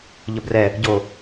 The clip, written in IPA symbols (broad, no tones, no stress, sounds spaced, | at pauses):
ʎ ə b r ɛ | ɟ o